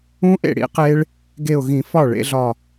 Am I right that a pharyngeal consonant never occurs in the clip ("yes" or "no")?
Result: yes